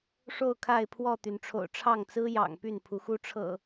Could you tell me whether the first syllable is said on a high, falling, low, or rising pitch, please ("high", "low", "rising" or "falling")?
falling